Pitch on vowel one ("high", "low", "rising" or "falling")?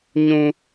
high